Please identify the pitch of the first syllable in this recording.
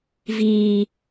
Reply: low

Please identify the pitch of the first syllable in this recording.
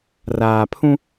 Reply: low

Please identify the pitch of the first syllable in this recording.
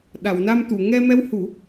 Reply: low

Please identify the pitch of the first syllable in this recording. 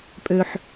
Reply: low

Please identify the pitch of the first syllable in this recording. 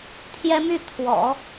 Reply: high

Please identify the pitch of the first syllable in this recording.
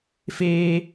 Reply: high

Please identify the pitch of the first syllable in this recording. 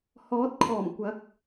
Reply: rising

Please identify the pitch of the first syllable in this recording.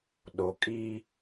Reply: low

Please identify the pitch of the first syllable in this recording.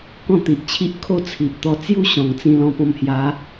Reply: falling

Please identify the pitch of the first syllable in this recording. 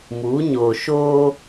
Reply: rising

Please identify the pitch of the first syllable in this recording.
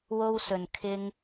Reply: high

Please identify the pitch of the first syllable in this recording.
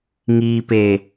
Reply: low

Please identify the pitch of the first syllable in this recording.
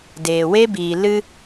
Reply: low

